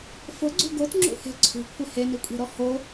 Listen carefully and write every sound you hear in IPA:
f ʊ ɡ͡ǀ ṳ ɡ o t ŋ͡ǁ ṵ h e̤ ǀʰ ṳ kʷʰ ɪ h e n i kʷʼ e̤ ɾ ɔ h o

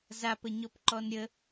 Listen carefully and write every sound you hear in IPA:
z a p ə ɲ ɔ p ǃ ɔ n ɾʲ ə

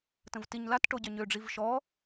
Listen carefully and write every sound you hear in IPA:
t ə̃ v t i ɲ l a t ʈ o ɟ œ ɲ ø ɖ͡ʐ i v ʃ ɔ

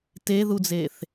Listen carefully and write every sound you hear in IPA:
t e ð u d͡z e θ

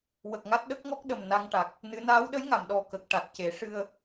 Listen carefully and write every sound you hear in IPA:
w ə˨˩ k̚ ŋ a˦˥ t̚ ɗ ə˦˥ k̚ ŋ ɔ˦˥ k̚ ɗ ə˨˩ m n a˧ ŋ ʈ a˨˩ k̚ | n ɨ˧˥ n aː˧˥ w ɗ ə˧˥ j ŋ a˨˩˨ m ɗ ɔ˨˩ k ə˨˩ k̚ ʈ a˨˩ t̚ c e˨˩˦ ʂ ɨ˧ ə̯

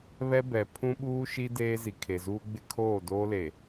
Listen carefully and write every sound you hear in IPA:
β ɛ˦ b ɛ˨ pʰ ũ˦ ɓ uː˦ ʃ i˦ d eː˦ z i˨ kʰ e˨ z uː˦ ɡ͡b ɪ˦ kʰ oː˦˨ d oː˦ l e˨

